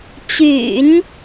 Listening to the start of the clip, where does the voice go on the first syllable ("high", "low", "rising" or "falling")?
low